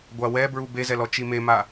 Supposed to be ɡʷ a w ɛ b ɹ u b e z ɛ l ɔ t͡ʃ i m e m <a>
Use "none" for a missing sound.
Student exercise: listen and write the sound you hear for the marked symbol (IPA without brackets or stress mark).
a